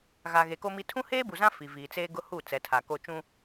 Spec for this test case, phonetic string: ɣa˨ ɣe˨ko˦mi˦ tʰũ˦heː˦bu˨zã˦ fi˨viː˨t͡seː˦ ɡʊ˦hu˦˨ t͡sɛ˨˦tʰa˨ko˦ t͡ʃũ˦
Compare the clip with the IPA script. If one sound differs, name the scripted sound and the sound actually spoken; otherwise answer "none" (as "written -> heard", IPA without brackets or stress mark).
none